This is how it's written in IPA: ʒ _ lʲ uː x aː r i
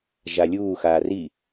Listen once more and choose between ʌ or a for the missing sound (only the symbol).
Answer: a